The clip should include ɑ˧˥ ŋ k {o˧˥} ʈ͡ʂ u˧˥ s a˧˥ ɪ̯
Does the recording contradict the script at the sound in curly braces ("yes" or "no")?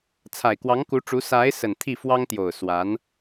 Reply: yes